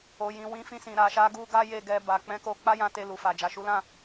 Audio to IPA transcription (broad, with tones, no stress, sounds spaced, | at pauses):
o˨ j ĩ˨ w ĩ˨˦ f ĩ˧ s ĩ˨ ɾ a˨ ʃ a˨˦ ɡ u˧ ɡ a˦ j e˦˨ ɡ ɛ˧ b a˨ k͡p ɛ̃˨˦ k o˧ k͡p a˦ j ã˧ t e˧ l u˨ f a˨ d͡ʒ a˨ ʃ u˨˦ l ã˦˨